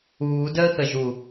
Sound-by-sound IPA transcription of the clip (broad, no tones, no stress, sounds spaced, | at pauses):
uː d əː x ə ʒ u